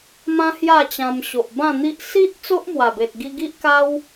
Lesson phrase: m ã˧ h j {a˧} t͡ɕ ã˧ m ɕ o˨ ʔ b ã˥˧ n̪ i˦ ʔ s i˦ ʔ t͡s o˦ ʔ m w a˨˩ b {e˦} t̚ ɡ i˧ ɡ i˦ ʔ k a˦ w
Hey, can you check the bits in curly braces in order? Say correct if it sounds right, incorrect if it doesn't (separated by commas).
incorrect, incorrect